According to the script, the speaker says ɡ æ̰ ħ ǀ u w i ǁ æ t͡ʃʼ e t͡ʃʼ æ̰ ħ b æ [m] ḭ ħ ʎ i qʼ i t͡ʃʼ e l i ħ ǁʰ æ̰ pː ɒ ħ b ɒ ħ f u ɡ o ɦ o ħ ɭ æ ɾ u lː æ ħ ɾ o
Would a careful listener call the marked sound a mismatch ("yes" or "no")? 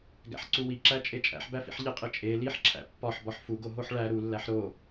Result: yes